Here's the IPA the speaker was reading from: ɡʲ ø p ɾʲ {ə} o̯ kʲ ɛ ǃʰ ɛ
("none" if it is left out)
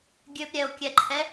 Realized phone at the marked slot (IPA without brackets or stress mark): ɛ